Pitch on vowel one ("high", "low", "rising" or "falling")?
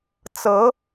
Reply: rising